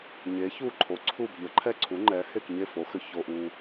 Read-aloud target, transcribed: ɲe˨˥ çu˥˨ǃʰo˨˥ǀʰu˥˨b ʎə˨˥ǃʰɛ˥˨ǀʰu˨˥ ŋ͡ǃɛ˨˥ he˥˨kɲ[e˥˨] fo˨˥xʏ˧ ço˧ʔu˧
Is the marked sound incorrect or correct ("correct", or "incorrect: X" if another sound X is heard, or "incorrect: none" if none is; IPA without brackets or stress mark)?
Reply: correct